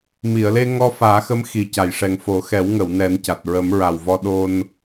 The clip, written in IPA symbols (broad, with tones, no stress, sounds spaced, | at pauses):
m i˨˩˨ ə̯ l e˧ ŋ ɔ˧ f aː˨˩˦ x ə˧˥ m x i˨˩ c a˨˩˨ j ʂ ɛ˨˩ ŋ f o˨˩˦ x ɛ˨˩˦ w ŋ ə˨˩˨ w n ɛ˨˩˦ n c a˨˩ t̚ ɹ ə˨˩˦ m ɹ a˨˩ w v ɔ˧˥ ɗ o˧ n